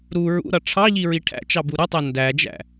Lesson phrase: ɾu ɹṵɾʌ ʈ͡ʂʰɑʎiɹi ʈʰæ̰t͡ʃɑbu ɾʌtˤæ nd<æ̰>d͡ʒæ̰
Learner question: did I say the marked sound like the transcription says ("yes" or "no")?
no